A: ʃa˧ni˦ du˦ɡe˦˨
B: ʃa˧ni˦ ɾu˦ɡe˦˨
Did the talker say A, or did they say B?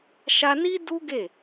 A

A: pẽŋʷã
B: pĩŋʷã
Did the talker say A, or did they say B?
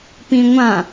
B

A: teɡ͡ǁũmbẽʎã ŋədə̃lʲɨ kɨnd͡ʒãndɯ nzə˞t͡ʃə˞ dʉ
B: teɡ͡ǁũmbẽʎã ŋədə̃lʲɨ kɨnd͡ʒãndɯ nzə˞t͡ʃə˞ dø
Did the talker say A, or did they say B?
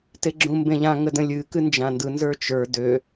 B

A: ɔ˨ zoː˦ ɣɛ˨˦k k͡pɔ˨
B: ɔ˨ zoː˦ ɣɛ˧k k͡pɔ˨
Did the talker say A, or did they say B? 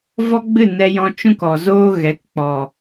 A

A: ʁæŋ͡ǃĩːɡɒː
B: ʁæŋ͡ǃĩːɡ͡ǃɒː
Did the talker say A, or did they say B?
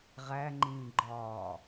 B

